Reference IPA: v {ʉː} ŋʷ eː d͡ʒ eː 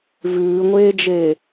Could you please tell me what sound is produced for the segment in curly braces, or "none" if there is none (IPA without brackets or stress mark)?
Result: ʉː